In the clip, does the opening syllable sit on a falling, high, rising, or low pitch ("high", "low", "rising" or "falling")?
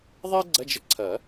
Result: high